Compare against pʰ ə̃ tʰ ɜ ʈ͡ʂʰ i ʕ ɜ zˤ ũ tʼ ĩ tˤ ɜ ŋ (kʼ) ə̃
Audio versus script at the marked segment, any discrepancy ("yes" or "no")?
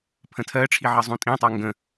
yes